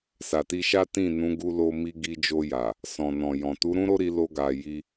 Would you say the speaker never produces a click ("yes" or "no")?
yes